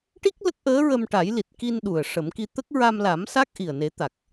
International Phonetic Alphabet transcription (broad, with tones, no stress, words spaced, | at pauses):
ʈi˦˥k̚ lə˦˥k̚ʔəː˧˥ɹə˧m ʈa˨˩˦jli˨˩t̚ki˧n ɗu˨˩ə̯ ʂə˨˩˦mki˧ t̪ə˦˥k̚ɹa˧m la˨˩˦m sa˦˥k̚ʔi˨˩ə̯ne˨˩˦t̪a˨˩k̚